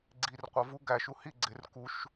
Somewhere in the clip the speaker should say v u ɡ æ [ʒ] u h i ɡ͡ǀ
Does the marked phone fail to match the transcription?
yes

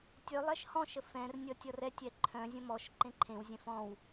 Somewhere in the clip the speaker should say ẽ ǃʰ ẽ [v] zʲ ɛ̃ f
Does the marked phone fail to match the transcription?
yes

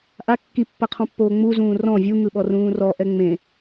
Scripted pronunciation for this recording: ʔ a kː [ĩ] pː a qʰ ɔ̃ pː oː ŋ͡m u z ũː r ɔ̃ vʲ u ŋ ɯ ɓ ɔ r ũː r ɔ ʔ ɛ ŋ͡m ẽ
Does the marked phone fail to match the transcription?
yes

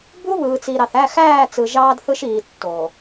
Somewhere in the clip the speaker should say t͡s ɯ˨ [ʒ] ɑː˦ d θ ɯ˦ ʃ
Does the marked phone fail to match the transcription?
no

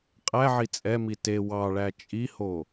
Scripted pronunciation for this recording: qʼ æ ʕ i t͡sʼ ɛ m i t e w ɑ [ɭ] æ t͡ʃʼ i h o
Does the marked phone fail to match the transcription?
no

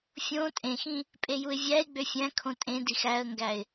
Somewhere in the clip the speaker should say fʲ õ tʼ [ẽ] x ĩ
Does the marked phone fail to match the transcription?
no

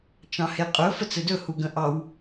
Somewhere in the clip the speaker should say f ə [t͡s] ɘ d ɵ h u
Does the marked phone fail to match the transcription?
no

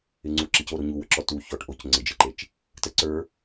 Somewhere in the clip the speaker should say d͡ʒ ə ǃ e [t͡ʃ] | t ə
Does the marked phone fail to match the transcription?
no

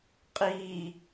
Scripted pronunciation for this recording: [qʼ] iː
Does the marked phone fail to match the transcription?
no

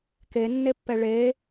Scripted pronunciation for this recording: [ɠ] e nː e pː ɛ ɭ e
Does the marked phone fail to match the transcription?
yes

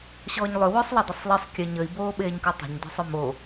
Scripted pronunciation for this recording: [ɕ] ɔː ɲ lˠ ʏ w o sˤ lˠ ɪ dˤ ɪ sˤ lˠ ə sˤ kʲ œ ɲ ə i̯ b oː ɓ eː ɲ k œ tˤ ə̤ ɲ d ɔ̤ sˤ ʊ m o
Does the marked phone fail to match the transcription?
no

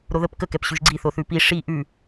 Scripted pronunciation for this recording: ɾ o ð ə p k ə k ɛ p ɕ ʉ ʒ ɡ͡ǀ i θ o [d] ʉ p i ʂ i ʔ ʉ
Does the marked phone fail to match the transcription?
yes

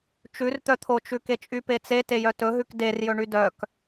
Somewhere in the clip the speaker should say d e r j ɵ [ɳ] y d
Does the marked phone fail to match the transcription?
no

